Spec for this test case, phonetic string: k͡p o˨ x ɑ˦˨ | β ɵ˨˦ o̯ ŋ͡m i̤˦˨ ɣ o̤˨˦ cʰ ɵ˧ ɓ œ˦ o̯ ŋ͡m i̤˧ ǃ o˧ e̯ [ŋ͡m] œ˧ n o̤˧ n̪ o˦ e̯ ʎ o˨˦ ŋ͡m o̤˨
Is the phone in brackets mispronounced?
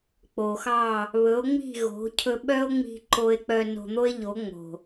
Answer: yes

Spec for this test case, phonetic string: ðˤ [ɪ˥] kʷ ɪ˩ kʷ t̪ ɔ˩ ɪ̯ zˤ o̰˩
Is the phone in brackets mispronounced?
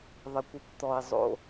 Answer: yes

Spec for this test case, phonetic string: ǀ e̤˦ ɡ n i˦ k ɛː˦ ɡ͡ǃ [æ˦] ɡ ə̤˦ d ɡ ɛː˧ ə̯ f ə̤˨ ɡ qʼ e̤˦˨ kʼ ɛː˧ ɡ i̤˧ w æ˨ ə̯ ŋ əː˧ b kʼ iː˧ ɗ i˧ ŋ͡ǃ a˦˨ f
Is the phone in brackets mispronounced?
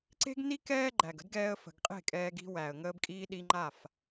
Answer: yes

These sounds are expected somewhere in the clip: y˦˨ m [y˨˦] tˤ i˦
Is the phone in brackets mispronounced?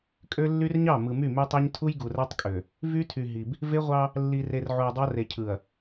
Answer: yes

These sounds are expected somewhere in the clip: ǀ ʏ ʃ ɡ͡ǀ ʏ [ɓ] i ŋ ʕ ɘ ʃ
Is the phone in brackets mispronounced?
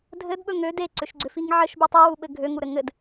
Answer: yes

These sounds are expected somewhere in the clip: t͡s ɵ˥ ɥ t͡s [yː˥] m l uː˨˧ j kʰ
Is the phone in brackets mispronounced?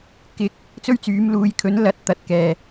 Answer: yes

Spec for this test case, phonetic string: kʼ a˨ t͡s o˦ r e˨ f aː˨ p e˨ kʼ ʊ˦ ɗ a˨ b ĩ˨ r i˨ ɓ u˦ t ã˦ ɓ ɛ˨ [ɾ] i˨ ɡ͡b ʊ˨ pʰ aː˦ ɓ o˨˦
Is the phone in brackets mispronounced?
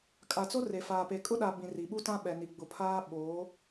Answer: yes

